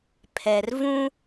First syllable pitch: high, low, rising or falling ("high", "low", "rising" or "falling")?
low